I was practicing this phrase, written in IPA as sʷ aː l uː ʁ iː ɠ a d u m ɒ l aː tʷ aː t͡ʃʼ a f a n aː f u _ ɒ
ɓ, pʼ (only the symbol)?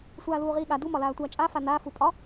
pʼ